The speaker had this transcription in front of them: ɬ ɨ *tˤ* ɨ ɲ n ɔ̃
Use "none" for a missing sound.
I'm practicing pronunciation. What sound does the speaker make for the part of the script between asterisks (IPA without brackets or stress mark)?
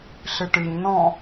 ʈ